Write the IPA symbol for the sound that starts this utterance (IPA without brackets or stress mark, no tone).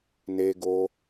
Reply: n